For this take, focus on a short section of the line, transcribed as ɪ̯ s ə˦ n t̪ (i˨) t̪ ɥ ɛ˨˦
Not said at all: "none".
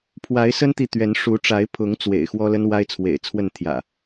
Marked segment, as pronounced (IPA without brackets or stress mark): i˨